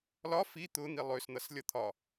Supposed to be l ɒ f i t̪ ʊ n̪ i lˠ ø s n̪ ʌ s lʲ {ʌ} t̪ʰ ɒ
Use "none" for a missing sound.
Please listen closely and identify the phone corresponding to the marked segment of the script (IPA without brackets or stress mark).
ʌ